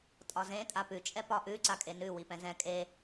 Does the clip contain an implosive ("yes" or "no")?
no